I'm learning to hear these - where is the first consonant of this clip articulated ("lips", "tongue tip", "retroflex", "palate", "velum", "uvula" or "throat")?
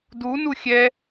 tongue tip